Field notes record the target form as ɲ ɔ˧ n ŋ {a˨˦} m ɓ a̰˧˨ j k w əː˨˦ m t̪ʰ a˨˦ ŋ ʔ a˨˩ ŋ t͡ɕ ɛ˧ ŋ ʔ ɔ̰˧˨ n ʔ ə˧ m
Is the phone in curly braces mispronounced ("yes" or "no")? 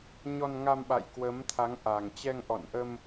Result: yes